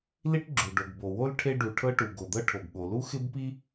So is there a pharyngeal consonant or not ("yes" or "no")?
no